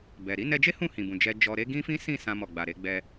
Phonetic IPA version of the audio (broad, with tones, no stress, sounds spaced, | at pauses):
b ɛ˨ ɾ i˨˦ n ɛ˧ d͡ʒ e˦ h ũ˦˨ h ĩ˨ b ũ˨ d͡ʒ ɛ˧ d͡ʒ ɔ˧ ɾ e˦ ɡ ĩ˦ f ĩ˦ s ĩ˦˨ s ã˧ m ɔ˨ ɡ͡b a˨ ɾ e˧ ɡ͡b ɛ˧